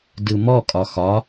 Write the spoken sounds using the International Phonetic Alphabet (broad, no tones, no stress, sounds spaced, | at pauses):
d ɯ m ɔ kʼ ɒ x ɒ